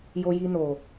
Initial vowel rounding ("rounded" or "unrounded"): rounded